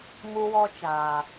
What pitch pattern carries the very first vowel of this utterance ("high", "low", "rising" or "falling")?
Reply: high